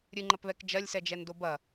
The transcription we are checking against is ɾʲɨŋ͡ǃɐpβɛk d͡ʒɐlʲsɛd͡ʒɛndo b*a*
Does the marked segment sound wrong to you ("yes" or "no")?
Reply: yes